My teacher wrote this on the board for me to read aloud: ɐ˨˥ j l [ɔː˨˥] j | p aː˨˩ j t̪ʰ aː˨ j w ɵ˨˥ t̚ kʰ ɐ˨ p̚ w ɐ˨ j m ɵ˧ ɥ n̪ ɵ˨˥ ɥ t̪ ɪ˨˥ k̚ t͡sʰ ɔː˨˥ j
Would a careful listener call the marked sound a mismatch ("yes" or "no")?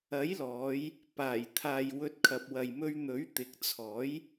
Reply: yes